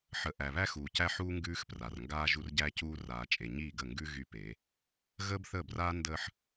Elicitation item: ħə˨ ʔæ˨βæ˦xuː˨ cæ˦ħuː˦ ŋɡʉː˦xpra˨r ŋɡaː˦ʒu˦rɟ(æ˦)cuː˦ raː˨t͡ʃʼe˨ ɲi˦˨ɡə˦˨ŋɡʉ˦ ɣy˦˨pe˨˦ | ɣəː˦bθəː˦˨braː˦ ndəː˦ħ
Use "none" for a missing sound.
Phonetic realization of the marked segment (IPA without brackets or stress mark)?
æ˦